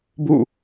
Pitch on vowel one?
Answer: falling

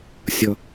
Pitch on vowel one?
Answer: low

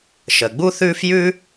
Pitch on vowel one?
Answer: low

